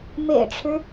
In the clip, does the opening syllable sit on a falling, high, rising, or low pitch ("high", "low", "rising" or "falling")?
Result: low